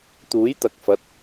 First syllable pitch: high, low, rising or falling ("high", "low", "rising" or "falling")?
rising